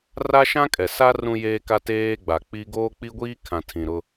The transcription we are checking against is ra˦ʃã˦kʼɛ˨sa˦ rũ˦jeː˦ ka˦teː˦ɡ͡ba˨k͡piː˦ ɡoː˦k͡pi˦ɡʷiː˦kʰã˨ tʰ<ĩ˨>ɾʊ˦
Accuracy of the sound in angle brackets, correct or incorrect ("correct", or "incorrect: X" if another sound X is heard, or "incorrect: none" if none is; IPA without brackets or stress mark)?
correct